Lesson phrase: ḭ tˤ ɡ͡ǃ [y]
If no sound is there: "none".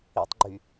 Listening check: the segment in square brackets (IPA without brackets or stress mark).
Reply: y